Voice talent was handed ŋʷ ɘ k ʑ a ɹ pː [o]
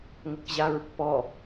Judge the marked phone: incorrect: ɔ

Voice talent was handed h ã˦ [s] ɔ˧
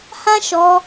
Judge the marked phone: incorrect: ʃ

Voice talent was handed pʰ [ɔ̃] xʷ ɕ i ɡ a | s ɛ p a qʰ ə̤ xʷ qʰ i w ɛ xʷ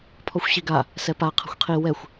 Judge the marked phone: incorrect: ɔ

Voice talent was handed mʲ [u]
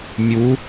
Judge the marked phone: correct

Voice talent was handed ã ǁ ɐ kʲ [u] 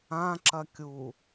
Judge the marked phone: correct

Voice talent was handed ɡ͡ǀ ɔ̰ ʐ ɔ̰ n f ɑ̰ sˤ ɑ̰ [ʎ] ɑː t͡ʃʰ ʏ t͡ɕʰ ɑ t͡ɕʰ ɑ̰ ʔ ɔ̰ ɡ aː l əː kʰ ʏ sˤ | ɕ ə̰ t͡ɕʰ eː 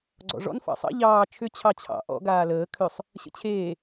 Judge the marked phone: correct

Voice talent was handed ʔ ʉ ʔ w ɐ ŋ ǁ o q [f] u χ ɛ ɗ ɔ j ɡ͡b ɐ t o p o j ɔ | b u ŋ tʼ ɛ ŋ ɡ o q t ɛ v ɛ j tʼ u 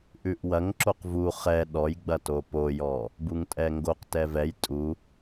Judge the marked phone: incorrect: v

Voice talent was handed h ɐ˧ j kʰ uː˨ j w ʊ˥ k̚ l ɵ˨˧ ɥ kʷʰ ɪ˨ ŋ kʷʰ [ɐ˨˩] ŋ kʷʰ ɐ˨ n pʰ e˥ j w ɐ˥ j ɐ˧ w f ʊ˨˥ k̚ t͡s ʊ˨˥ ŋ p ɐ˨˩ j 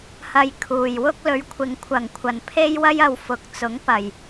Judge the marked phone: correct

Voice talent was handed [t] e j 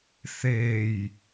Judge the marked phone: incorrect: θ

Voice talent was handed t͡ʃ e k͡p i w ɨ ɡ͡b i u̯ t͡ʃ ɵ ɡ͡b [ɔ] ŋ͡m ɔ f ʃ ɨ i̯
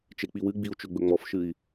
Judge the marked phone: incorrect: ɵ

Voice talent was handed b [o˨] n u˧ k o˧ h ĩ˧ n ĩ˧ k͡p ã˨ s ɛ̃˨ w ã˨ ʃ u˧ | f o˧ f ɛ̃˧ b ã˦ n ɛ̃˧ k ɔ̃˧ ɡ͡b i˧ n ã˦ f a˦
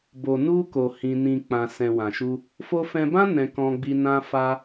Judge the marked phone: correct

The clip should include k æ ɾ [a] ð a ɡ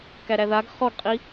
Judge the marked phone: incorrect: æ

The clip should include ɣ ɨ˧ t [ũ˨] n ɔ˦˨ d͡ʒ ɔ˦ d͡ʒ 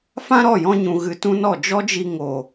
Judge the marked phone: incorrect: ũ˦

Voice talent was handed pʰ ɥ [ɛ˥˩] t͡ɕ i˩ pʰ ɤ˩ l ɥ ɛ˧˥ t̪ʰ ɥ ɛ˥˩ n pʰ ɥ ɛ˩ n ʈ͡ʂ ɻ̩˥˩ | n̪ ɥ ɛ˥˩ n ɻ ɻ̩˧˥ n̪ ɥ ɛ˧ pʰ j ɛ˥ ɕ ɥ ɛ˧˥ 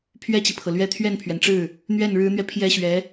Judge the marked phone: correct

